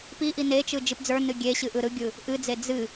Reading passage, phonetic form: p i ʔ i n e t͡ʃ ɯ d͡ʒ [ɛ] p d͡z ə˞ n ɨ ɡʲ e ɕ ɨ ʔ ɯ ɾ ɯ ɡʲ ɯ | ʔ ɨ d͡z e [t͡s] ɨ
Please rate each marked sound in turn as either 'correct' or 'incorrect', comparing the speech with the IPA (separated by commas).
incorrect, incorrect